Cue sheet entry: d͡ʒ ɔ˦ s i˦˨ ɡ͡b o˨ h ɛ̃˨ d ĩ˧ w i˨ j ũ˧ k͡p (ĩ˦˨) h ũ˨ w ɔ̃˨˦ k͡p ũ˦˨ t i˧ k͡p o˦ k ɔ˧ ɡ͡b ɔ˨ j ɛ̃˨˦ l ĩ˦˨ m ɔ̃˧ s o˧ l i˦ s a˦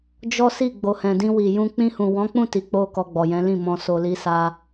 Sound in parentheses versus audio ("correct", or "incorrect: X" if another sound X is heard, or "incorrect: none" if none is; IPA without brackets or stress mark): incorrect: ĩ˧